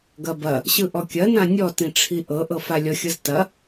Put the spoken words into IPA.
ɡ ɐ b ɐ | ɕ ɯ ʔ ɔ kʲ ɐ n ã nʲ ɔ t ĩ ʈ͡ʂʰ i ʔ ɤ ʔ ɤ f a lʲ ɔ xʲ ɤ z t ɐ

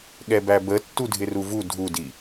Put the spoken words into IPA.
ɠ ɛ b æ b ə tː u dʱ ɪ r u v u dʱ u d i

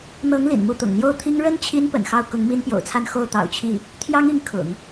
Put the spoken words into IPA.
n̪ ɤ˧˥ ŋ l ḭ˨˩ n m u˥˩ t̪ ʊ̰˨˩ ŋ n̪ j o˥˩ ʊ̯ t̪ʰ i˥ ŋ ɻ ə˥ n t͡ɕʰ i˧˥ n p ə̰˨˩ n x ɑ˥˩ ʊ̯ k ʊ˧˥ ŋ m i˥ n p j o̰˨˩ ʊ̯ t͡sʰ a˥˧ n x o˥˩ ʊ̯ t̪ ɑ̰˨˩ ʊ̯ t͡ɕʰ i˥˩ | t̪ʰ j ɑ˥ ŋ i˧˥ ŋ kʰ ʊ̰˨˩˦ ŋ

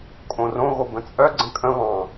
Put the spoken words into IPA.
kʼ õ r õ ɣ o b ə̃ t͡sʼ œ ɡ͡ǀ ə̃ kʼ ə̃ β ɑ̃

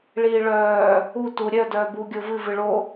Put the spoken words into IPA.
ɭ iː ɭ œː | u t u ɾʲ œ d œː b u ɡʲ o v ɨ v ɨ ɭ o

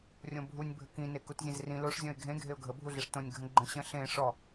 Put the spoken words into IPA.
rʲ õ bʱ u nʲ bʱ ə k ĩ n e k u t zʲ ẽ z r ĩ l o ʂ zʲ ɔ̃ ɪ̯ ɡʱ ẽ ɡʱ e ʊ̯ ɡʱ ə bʱ u ɮ e ʂ t õ nʲ ɡʱ ə̃ ɡ͡ǃ ə̃ ɕ ə̃ ɬ ẽ ʂ ɔ

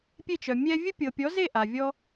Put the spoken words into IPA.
pʲ e˥˨ t͡ʃ œ˨ mʲ ɛ˥ vʲ ə˥ pʲ ɤ˨ pʲ ɔ˨˥ z e˥˨ ʔ a˨ vʲ ɔ˥

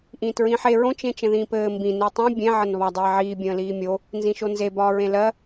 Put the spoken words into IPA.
ʔ ĩː t ɹ ĩː ħ e ɹ õ t͡ʃ ẽ t͡ʃ ə̃ ð ĩː p ɘː m b ĩ n e tˤ õ bʲ ẽ ʕ ə n β ɒ dˤ iː ʕ iː bʲ ə̃ː l iː mʲ o | n z ĩ ʃ o n z e b ɒː ɹ ẽ l ɜ

